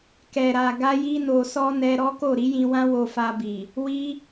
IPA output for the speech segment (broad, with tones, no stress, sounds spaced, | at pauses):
k ɛ˨ ɾ a˨ ɡ a˧ j i˧ n o˨ s ɔ˧ n ɛ˧ ɾ ɔ˦ k o˦˨ ɾ i˨˦ j ĩ˧ w ã˦ w o˧ f a˧ b i˨ | w i˦